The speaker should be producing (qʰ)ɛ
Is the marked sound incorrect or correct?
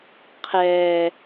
correct